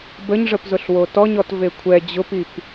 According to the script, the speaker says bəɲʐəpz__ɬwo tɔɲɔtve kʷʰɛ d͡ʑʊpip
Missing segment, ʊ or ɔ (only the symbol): ʊ